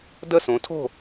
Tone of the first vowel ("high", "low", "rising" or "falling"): falling